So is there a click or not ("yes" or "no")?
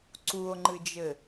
yes